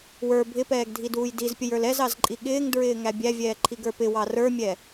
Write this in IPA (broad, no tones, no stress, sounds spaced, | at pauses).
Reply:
w ə˞ bʱ ɪ p ɛː ɡ dʱ i d uː j d i z pʲ ə j ə˞ l ɛ z ɑ z ǃʼ i ɠ ɪː ŋ d ɹ ɪː ŋ æ bʲ æ vʲ ɛː ǃʰ i ɡ ə˞ p ɪ w ɑ r ə˞ mʲ ɛ